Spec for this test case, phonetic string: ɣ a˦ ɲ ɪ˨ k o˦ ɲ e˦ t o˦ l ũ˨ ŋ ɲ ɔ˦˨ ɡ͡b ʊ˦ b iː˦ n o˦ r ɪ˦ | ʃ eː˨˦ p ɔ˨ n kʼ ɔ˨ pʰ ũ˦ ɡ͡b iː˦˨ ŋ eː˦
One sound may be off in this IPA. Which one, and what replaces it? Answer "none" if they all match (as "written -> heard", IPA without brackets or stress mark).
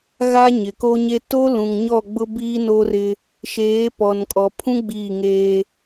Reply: none